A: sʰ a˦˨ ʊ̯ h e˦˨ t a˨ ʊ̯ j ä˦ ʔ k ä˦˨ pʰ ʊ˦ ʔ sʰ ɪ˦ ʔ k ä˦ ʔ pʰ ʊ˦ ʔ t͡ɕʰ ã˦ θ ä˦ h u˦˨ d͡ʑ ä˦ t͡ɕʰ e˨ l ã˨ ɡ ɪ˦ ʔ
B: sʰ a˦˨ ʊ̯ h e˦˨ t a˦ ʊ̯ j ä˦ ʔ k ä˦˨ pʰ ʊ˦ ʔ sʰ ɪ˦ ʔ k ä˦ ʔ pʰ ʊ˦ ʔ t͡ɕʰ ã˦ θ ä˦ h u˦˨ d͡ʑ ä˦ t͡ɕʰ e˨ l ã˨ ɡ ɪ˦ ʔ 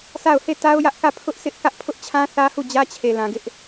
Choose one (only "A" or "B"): B